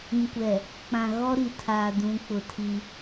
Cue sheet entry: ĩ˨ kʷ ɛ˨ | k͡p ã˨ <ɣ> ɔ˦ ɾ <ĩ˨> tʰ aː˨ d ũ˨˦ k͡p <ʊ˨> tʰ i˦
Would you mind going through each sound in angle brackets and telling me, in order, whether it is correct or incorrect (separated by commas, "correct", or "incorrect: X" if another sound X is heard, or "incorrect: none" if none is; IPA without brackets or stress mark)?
correct, incorrect: i˨, correct